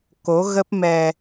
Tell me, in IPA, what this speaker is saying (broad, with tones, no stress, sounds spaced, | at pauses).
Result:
k o˨˦ ɣ ə˦˥ p̚ m ɛ˧